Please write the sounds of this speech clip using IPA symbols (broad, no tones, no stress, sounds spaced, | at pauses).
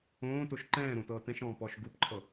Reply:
õː t o ʃ ǃ ɛ̃ː ɾ õ t ɤː t ɛ̃ ʃ ɔ̃ː p ɔ ʃ ɡ u p ǃʰ ɤ